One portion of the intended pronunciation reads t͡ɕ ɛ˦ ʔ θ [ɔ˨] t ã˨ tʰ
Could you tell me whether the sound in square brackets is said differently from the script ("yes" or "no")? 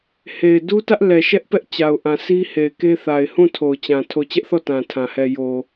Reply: yes